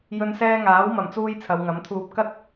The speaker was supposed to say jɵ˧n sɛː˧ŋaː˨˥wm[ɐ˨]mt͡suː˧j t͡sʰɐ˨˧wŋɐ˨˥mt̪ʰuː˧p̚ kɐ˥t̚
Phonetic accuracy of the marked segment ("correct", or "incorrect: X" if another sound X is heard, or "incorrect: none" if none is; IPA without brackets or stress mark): incorrect: ɐ˨˩